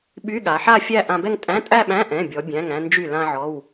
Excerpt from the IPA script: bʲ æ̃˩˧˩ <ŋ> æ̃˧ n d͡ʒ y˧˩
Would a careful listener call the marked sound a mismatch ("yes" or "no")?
no